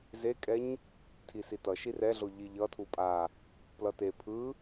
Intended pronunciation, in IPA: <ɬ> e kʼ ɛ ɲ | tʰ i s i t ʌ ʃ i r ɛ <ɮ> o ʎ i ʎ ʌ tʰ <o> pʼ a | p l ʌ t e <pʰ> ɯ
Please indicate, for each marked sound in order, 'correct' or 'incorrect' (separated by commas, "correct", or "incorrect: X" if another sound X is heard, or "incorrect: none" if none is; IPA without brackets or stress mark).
incorrect: z, correct, incorrect: u, correct